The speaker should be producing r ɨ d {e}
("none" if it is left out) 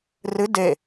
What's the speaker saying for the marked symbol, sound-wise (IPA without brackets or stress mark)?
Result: e